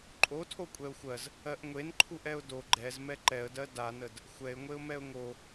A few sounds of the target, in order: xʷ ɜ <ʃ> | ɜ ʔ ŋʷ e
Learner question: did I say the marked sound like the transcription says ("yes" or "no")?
no